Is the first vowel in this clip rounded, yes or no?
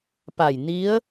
no